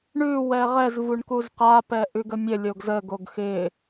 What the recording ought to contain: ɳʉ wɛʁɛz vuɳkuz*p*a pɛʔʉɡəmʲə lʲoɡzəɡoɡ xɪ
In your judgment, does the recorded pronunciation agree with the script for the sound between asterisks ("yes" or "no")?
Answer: no